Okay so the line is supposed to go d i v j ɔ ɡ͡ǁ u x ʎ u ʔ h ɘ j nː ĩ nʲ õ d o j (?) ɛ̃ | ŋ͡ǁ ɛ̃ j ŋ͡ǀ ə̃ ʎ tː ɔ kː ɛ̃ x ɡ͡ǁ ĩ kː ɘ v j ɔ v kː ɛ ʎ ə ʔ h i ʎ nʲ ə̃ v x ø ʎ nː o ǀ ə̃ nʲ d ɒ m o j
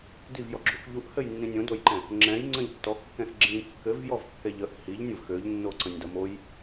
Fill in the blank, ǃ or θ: ǃ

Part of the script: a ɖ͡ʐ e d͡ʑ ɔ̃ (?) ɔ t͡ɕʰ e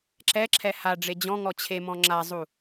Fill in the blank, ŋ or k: ŋ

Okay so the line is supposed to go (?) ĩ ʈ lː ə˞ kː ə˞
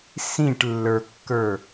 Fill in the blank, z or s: s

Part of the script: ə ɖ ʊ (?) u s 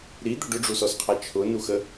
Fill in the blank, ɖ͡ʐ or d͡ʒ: ɖ͡ʐ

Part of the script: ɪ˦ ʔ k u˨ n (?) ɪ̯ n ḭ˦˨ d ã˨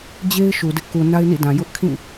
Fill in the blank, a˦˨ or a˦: a˦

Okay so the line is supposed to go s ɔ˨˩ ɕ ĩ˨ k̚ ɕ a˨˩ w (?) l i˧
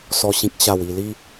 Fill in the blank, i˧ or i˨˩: i˨˩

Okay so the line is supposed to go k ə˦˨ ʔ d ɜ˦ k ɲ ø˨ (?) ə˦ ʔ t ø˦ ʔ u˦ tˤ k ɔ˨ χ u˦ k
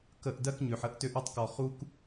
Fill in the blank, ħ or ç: ħ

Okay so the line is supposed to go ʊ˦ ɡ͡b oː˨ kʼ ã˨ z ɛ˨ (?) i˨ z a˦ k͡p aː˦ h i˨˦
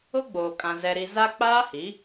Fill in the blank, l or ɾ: ɾ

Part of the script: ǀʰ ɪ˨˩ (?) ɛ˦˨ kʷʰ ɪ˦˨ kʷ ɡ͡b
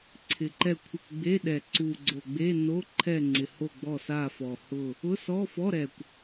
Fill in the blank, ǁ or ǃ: ǃ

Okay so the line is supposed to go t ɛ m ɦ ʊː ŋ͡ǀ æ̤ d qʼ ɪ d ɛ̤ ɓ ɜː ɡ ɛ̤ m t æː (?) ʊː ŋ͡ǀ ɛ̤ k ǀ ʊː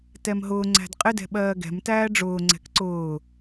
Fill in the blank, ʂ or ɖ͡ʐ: ɖ͡ʐ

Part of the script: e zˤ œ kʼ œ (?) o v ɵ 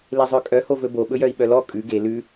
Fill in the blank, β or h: h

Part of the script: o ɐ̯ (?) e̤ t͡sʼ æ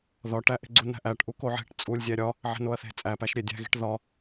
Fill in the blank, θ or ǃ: θ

